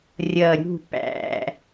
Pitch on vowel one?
falling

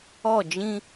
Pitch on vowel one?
falling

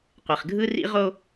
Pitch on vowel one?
low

